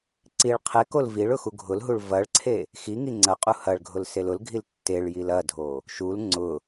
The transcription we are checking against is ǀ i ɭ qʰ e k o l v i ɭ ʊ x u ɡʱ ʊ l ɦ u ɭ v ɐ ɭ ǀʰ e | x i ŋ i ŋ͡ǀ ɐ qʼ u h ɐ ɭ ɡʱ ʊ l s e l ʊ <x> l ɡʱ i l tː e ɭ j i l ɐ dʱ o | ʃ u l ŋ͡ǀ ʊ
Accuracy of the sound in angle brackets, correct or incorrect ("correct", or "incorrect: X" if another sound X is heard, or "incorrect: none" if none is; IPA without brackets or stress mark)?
incorrect: none